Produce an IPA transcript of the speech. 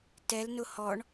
t ɛ l n ʊ h ɔ ɳ

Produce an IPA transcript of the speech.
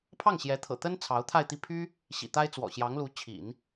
pʰ ɑ˥˩ ŋ ɕ j ɛ˧˥ t̪ʰ ɤ̰˨˩ t̪ ə˥ n t͡sʰ ɑ˧˥ ʊ̯ t̪ʰ a˥˧ ɪ̯ t̪ i˥˩ pʰ y˥ | ɕ ḭ˨˩ t̪ a˥ ɪ̯ t͡s w ɔ̰˨˩ ɕ j ɑ˧˥ ŋ l u˧˥ t͡ɕʰ ḭ˨˩˦ n

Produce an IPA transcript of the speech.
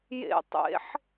j ḛ tˤ ḛ ħ

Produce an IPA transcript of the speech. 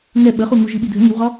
ŋ ɛ ɓ ə χ u ŋ u ʒ i ɓ i dʱ ə ŋ i w ʁ ɒ

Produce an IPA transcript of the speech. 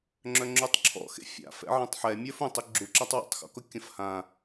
ŋ͡ǁ œ ŋ͡ǁ u tˤ ǁʰ ɔ̰ x ḛ fʲ a̰ f ɛ̰ ʕ ɐ̃ tˤ ħ ɛ mʲ œ f ũ tˤ ʊ ɡ͡ǁ u ǁ ɐ tˤ w ɔ̰ tˤ x ɔ̰ k ʊ kʲ ɐ̃ f h ã

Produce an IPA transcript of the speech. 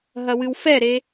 ɦ ɐ w ɨ w f ɛ ɾ e

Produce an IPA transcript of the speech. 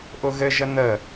ʔ ʊ ɣ ɘ ʒ ə n̪ ə

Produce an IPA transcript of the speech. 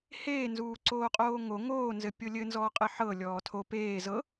h eː n z uː ǀ oː qʼ oː ŋ o ŋ oː n z ɘ pʲ o lʲ ɘ n z ɔː qʼ ɘ ħ ɤ lʲ ɔː tʰ o p eː z ɤ

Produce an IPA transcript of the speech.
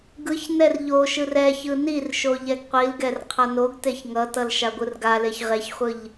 ɡ ɯ ç n ɛ r ʎ o ʃ ɯ r ɛ ç ɯ n i r ʃ o ʎ ɛ ɡ qʷ i l ɡ ɛ r qʰ ʌ n o ɡ t e ç ŋ ʌ t ʌ l ʃ a ɡʷ ɯ r ɡ a l e ç ʁ e ç χʷ ɯ ʎ

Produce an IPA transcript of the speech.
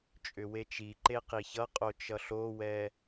t͡ʃʼ ʏ w e t͡ʃ i ǃ e q i ç ʌ qʼ o t͡ʃ ʌ ɬ o w ɛ

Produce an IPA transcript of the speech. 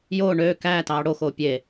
j oː ɳ øː k æː t ɑː ɽ o x oː pʲ e

